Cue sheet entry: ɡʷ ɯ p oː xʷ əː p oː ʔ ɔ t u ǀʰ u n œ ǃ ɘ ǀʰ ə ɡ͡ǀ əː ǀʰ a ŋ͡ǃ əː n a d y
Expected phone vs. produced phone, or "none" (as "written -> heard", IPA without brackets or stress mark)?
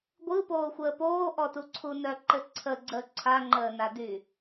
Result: none